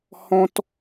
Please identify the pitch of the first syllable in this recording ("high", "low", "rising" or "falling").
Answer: high